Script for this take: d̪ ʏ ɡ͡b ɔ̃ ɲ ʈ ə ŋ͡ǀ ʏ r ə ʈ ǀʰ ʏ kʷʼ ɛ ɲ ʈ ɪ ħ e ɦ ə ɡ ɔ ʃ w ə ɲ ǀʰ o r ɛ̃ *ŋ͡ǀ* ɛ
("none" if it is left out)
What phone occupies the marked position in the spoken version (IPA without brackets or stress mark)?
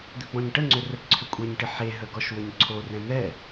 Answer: n̪